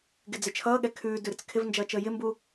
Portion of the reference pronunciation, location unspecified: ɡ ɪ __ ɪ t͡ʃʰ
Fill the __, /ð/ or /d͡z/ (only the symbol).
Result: d͡z